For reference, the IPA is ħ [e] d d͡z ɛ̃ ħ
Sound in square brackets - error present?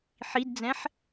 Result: yes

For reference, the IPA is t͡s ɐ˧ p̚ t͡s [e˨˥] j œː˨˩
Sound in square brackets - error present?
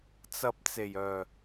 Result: yes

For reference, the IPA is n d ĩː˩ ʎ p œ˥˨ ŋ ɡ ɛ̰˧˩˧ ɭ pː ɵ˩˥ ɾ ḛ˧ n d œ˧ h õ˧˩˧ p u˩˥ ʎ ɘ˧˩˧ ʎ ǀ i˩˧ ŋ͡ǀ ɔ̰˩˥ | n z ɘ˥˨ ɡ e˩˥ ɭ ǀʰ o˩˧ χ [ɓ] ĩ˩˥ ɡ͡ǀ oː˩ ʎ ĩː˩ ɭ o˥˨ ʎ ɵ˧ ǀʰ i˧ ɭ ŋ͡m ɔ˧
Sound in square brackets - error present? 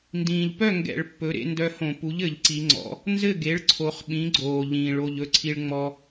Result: no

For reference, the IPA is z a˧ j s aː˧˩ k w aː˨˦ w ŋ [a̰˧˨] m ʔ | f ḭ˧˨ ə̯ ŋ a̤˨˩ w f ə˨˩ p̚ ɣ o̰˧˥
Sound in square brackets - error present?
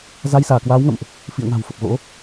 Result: yes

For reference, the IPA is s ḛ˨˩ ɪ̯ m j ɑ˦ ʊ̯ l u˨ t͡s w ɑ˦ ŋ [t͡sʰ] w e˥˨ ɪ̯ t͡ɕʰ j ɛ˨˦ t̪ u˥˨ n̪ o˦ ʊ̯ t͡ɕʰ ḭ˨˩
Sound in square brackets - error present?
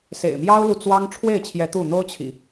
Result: yes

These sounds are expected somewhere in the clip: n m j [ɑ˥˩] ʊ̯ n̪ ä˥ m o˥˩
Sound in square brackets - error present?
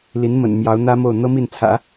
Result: yes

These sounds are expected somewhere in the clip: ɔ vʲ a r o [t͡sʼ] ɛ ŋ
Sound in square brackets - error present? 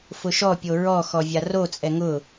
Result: no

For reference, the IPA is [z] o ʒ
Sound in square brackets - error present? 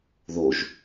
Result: yes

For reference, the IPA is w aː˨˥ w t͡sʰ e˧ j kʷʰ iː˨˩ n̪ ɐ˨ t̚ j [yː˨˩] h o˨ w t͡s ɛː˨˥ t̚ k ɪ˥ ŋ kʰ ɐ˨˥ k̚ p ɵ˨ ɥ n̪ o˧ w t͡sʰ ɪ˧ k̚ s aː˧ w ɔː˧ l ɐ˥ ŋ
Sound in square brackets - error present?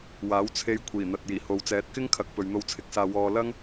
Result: yes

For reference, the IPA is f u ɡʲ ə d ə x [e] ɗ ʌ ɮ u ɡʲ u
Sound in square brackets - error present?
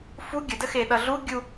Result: no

